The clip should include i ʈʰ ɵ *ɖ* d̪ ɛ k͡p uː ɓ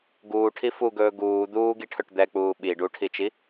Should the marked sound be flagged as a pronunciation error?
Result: yes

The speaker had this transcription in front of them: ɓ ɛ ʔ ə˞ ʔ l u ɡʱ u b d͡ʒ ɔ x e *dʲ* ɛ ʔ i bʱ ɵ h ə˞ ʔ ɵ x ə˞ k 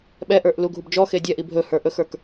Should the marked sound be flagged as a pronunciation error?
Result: no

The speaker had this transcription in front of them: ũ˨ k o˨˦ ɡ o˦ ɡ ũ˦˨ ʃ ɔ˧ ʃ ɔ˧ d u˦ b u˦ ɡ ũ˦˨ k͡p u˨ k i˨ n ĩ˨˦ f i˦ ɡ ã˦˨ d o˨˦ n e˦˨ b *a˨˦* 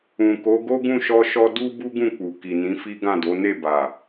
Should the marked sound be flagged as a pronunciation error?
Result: yes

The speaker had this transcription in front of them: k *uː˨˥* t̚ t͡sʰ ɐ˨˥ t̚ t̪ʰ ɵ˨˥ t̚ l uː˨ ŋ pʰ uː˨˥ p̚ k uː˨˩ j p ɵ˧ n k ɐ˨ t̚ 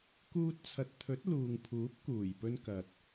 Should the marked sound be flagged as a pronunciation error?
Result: yes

